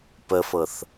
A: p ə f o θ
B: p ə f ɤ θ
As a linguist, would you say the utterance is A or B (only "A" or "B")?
B